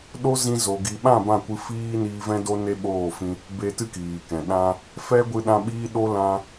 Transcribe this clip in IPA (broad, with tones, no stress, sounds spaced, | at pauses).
ɗ o˦ z ĩ˧ z o˨ ɡ i˨ ɓ ã˦˨ b ã˦˨ kʷ ɨ˧ f iː˦ n iː˧ v ɛ̃˦ d o˦ n e˦ ɓ oː˦˨ f ĩ˧ | b e˧ t ɨ˦ k iː˨ k ɛ̃˨ ɗ ã˧ | f ɛ˦ ɡʷ ɨ˧ ɗ ã˧ ɓ iː˦ ɗ o˦ l ã˧